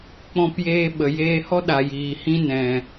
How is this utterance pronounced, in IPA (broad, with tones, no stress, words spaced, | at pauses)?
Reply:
k͡pɔ̃˧pjeː˧ ɓə˨jeː˧hɔ˦ ɗa˨jiː˨ hĩ˧ nɛ̃˨